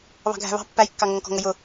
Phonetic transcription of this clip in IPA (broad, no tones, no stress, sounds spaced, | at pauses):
β ɑ̤ ɡʱ æ̤ β ɑ̤ pː æ j kː ɑ ŋ ʌ ŋ k ɔ̤ ŋ ə j ʊ